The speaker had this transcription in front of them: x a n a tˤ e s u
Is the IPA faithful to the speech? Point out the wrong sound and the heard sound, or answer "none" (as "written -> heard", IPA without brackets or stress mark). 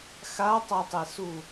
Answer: n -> tˤ